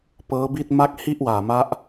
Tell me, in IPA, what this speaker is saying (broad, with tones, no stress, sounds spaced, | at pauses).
p ɤː˦˥ b i˥˩ t̚ m a˥˩ k̚ h i˥˩ ʔ w aː˨˩ m a˦˥ ʔ